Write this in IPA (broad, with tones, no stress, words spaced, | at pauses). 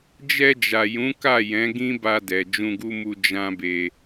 d͡ʒɛ˧d͡ʒa˨jũ˨˦ka˦˨ jɛ̃˨˦ɡĩ˦ba˧dɛ˨ d͡ʒũ˧ɡu˦mu˧ d͡ʒã˦be˧